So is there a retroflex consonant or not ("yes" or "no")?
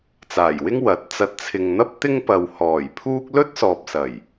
no